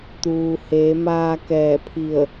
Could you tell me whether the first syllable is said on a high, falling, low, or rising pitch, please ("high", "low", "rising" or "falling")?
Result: low